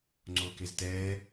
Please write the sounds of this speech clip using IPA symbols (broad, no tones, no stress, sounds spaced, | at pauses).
ŋ͡ǀ oː k e z t ɛː